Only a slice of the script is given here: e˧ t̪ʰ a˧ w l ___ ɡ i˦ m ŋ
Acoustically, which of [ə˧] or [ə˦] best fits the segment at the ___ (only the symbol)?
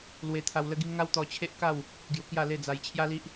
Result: ə˦